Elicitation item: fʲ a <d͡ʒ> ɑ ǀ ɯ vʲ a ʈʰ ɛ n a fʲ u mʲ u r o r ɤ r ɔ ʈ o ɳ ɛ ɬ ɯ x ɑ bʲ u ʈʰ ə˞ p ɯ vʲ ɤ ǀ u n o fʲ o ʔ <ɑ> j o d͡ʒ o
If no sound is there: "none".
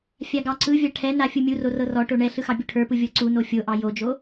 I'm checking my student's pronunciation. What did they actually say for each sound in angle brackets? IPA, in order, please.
ɡ, ɑ

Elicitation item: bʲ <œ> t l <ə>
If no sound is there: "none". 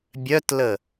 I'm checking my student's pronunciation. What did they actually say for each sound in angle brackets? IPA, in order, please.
œ, ə

